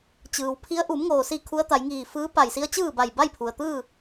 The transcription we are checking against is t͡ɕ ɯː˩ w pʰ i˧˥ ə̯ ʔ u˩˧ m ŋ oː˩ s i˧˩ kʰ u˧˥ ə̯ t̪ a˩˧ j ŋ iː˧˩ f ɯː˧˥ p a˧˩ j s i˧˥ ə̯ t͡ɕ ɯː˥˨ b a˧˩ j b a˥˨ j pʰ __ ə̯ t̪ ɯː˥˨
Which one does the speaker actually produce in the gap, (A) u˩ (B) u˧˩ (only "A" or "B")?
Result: A